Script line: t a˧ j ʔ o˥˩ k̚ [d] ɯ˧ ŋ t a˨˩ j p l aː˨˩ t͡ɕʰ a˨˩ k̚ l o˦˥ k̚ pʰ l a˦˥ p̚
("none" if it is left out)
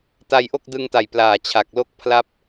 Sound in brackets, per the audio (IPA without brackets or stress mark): d